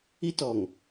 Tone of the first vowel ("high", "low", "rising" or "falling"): high